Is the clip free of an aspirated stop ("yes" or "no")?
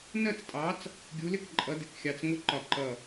yes